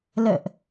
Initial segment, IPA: l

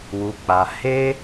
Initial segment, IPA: w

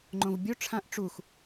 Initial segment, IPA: ŋ͡ǃ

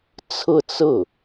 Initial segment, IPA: t͡sʰ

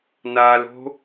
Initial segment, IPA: n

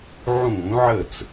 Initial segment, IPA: ʕ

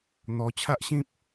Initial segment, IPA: n̪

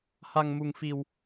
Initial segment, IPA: h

